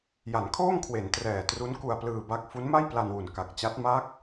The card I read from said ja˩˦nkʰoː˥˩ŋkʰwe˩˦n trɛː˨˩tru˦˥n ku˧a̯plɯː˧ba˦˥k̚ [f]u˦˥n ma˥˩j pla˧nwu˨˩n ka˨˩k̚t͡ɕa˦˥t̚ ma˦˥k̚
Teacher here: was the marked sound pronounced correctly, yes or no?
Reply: yes